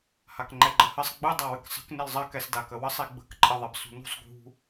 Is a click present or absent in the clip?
present